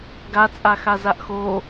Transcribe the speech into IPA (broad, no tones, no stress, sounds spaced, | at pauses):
ɡ a t͡sʼ a x a z a ʔ x o